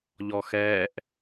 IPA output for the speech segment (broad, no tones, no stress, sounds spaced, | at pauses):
ʎ ɔ x ɛː ʔ